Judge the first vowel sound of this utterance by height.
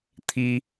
high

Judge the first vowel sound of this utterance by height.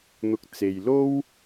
high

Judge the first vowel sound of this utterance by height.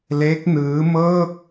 mid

